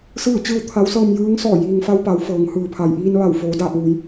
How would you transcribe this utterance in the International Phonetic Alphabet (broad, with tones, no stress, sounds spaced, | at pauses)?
s ɯː˥˨ t͡ɕ ɯː˥˨ w t̪ʰ a˧˥ w s ɤː˧ m j ɯː˧˥ ŋ s ɔː˧˩ j iː˩ ŋ f a˧ w p a˩˧ w f ɤː˩˧ ŋ h ɯː˩ pʰ a˩ j ʔ iː˧ n ʋ a˧˩ w f oː˩˧ d aː˧˩ p̚ ʋ u˩˧ j